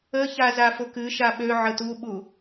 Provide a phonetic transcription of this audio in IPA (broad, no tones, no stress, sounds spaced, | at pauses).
ə ç a z a f ʊ k ɨ ʃ a ɓ ø ʕ ə t u ɓ u